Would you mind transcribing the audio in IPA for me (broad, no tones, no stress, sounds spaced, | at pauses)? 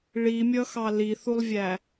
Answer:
ɭ i mʲ ʌ x ɑ l i θ u lˠ vʲ æ